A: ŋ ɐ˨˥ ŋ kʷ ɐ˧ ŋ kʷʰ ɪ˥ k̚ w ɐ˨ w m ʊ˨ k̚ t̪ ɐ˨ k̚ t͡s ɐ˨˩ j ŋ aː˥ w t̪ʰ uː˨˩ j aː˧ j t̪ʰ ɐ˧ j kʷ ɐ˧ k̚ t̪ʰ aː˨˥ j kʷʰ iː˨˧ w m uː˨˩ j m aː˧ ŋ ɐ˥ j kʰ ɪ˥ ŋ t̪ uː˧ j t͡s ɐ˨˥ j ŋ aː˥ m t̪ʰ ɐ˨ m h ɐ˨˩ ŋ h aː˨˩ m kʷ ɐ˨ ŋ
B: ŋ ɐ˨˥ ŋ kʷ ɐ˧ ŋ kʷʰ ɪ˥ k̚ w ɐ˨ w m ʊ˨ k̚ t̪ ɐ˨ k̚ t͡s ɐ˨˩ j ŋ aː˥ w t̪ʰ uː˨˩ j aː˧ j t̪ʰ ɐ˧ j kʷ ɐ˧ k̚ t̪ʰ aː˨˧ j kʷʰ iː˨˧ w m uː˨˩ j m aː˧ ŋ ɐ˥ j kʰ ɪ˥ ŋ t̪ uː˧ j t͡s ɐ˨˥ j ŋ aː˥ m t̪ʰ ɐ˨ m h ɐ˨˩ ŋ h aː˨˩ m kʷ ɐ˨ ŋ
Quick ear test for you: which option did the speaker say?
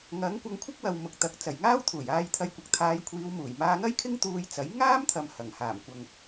B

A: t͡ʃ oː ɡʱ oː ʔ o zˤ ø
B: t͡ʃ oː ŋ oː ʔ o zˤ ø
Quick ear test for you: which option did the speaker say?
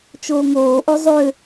B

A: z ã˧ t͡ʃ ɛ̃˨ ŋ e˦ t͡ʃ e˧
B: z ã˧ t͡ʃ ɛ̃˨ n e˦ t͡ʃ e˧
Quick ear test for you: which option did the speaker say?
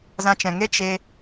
A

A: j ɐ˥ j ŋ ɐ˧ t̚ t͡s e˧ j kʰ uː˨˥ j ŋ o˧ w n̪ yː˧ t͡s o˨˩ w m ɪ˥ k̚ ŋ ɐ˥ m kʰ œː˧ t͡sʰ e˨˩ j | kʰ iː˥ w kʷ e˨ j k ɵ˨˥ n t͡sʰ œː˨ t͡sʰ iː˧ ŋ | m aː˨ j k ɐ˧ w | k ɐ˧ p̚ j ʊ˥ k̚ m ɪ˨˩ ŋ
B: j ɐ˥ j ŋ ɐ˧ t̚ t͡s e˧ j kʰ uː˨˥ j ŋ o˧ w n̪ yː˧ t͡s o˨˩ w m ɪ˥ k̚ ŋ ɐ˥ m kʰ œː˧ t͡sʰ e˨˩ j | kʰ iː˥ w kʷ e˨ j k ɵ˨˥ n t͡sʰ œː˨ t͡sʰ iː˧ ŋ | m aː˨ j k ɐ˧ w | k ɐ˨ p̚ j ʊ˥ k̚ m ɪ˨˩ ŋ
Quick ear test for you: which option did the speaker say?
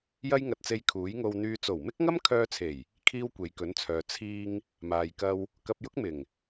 A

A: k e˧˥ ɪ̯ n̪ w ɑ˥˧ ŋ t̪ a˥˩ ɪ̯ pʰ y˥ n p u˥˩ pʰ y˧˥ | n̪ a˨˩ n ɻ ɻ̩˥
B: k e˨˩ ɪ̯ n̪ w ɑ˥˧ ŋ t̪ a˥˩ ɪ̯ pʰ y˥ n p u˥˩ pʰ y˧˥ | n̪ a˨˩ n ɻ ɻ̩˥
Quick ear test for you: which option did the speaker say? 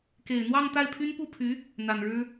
B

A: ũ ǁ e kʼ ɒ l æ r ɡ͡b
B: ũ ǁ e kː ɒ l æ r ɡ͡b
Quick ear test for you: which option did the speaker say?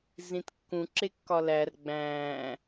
B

